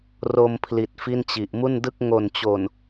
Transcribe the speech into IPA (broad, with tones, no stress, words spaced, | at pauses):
ro˧mpʰli˨˩t̚ fi˥˩nt͡ɕi˨˩ʔ mu˥˩ndɯ˥˩k̚ ŋo˨˩nt͡ɕo˨˩n